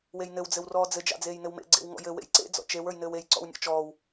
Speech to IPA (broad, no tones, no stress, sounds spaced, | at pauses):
w e j n ɘ w d͡z ɘ w r ɔː d͡z ɘ d͡ʒ ɑ̰ d͡z eː j n ɘ w m ḛ ɡ͡ǀ ḛ w ŋ ɔ̰ j ɘ w ḛ j ǀ ḛ d͡z ɔ̰ t͡ʃ e w ə˞ j n ɘː w e j ǀ ɔ̰ w nʲ ɔ̰ t͡ʃ ɔː w